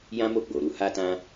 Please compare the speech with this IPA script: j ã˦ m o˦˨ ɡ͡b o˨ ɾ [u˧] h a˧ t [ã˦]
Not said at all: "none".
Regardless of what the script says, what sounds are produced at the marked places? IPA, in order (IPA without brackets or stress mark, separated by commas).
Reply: u˧, ã˧